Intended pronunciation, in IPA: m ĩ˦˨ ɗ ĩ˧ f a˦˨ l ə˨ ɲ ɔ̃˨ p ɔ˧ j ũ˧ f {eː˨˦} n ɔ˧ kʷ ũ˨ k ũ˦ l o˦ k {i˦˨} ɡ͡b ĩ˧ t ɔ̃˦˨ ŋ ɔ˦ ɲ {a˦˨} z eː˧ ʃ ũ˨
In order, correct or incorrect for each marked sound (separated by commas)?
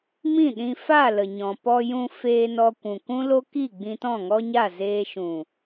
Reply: incorrect, correct, correct